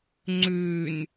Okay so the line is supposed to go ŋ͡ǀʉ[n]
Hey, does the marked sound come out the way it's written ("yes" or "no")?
yes